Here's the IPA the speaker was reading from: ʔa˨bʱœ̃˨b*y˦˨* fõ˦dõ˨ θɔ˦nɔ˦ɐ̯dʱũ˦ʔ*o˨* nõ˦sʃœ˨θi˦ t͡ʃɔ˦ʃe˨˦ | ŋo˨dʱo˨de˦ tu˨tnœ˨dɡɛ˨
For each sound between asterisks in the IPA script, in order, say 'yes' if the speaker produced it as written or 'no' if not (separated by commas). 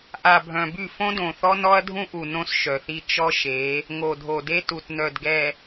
yes, no